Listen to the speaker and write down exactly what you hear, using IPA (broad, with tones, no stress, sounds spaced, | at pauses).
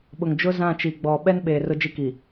ɓ ʊ˨ ŋ d͡ʒ ʊ˦ z ã˦˨ t͡ʃ i˨ ɡ͡b ɔ˨ ɓ ɛ˦ n ɓ eː˨ r ʊ˦ d͡ʒ i˦ k i˨